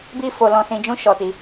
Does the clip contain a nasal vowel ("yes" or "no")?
yes